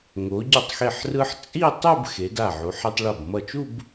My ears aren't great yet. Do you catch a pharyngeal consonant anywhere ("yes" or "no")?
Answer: yes